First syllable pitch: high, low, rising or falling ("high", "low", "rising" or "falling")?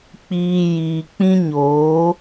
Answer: low